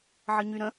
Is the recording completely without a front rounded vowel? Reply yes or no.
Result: no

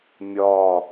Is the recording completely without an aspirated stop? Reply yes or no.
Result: yes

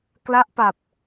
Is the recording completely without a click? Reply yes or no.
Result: yes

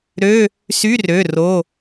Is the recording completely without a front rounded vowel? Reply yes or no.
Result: no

